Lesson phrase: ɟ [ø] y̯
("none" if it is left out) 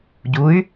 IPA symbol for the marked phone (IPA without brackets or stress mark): u